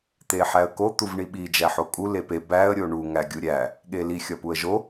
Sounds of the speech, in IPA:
t̪eħæə̯ko t̪uvɳiɓi d͡ʒæħokʼu lepe bæə̯ ɾʲoɳu ŋæɡʲuɾʲæ | ɠeli xʲɒpuə̯ʒo

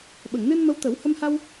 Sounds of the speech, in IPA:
ɓə˨˩˨ŋnɨ˧nmə˧˥wt̪ə˨˩˦w hə˧mha˧w

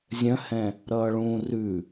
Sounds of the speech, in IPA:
zʲœ̃hɛ̃ | ɾʌːɭũːrʉ

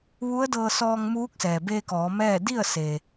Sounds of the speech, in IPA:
ʋu˧˥ə̯dɤː˧ sɔː˧ŋmuː˧˥k̚sɛː˩ beː˧kɔː˩˧ mɛː˥˨ di˥˨ə̯ se˧

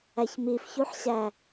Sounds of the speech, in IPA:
æçmifçuħɕæ

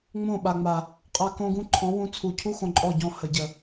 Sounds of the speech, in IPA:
ŋ͡mõ˦˨ ɓa˨ŋ͡ma˨ | qʼa˧ kõ˦ɡũ˦ ǃʰɔ̃˨˦wũ˧ t͡sʰu˨cʰu˦ xõ˧ǃʼɔ˦˨ɟɔ̃˦˨ hə˨ɟə˨

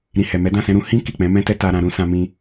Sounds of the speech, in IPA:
ɾĩ˨ hɛ˨mɛ˨˦ dã˦˨sɛ̃˧ɾũ˧ hĩ˦ ki˦˨k͡pɛ̃˨˦mɛ̃˦tɛ˦ ta˧ɾã˧ɾũ˧ sã˧mĩ˧

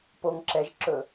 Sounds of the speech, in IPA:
poŋǁɛʒǁɵ

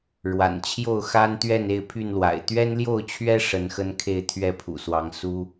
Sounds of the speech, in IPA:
ɻwa̰˨˩nt͡ɕʰjo˥˨ʊ̯ xa˦nt̪ɥɛ˥˨n e˥˨ɪ̯pʰy˥˨nlwa̰˨˩ɪ̯ t̪ɥɛ˦nljo˥˨ʊ̯t͡ɕʰɥɛ˦ ʂə˨˦nxə˦nkʰe˥˨ɪ̯ t̪ʰɥɛ˥˨pʰṵ˨˩swɑ˨˦ŋ su˦

